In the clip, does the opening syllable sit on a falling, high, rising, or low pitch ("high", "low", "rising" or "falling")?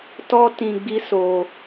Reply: high